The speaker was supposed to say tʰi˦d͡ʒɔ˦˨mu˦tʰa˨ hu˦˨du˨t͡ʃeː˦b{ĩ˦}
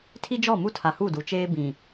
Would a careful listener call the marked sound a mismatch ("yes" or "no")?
yes